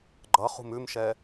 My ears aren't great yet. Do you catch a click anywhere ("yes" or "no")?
yes